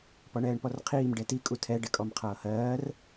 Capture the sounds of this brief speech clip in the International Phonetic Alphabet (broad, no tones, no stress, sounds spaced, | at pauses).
p ɔ ɳ ɛː ɳ p ɔ r qʰ iː m ɖ ɛ t i kʼ u tʰ ɛ ɖ ɛ kʼ ɔ m qʰ ʌː h ɜː r